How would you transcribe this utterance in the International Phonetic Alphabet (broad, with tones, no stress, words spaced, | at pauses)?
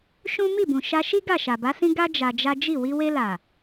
ʃũ˦ mi˦˨bũ˨ ʃa˧ʃi˦ ɡa˦˨ʃa˨ba˨˦sĩ˦ ɡa˦ d͡ʒa˧d͡ʒa˦ d͡ʒi˦˨ wi˧we˧ la˨